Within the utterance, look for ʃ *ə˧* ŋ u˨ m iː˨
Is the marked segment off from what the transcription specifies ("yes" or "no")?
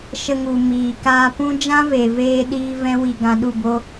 no